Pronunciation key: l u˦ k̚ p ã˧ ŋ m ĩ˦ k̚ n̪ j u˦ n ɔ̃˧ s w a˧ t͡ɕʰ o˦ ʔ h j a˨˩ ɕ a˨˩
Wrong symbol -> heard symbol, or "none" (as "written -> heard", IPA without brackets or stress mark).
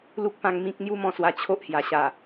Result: n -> m